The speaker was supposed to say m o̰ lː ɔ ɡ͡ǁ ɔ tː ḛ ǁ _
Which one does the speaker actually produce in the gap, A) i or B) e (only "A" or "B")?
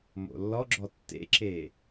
B